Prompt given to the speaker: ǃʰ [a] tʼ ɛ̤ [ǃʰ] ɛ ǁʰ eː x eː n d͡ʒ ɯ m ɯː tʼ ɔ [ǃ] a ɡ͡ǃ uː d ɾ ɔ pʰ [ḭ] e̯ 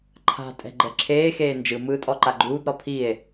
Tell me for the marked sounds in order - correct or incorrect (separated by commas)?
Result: incorrect, incorrect, correct, incorrect